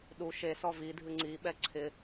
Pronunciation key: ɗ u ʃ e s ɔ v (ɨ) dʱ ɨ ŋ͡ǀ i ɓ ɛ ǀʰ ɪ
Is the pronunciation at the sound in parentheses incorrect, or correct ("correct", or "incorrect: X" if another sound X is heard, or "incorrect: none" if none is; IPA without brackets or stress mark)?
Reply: incorrect: i